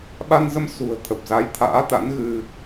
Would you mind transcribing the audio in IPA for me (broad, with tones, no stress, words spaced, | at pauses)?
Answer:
ɓa˧nzə˧m sṳ˨˩ə̯ t̪ʰə˨˩p̚za˨˦jt̪ʰa̰ː˧˥t̪a̰˧˥n ɣɨ˧